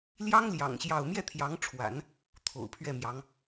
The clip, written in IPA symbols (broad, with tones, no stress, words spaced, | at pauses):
ljɑ˥ŋljɑ̰˨˩ŋ ɕjɑ˥˧ʊ̯ mjɛ˥˩t̪ʰjɑ˧˥ŋʈ͡ʂʰwa̰˨˩˦n | t̪ʰo̰˨˩ʊ̯pʰɥɛ˥˩mjɑ˧˥ŋ